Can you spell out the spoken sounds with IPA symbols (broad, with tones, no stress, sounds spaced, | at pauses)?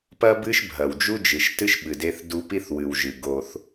p ɐ˦ b ɨ˦ ʃ bʱ ɐ˨ w d͡ʒ u˦ d͡ʒ ɨ˨ ʃ t ɨ˦ ʃ ɓ ɨ˨ d e˦ θ d u˦ p i˦ θ w ɨ˨ w ʒ ɨ˨ ɡ o˦ θ